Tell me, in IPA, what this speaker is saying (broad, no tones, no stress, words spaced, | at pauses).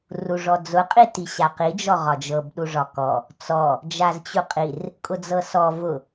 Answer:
ruʐɔd͡zʊ qʼitiɕaqi d͡ʒɔʁɒd͡ʒɤb ɗuʐɒkɔ | t͡sɔ | d͡ʒazt͡ɕuqʼir | kʼʊd͡zɤsɔ vʊ